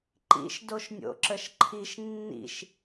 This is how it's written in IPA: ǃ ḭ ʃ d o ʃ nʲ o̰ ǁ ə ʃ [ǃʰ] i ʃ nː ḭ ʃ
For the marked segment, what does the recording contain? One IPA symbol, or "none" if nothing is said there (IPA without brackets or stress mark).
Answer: ǃʰ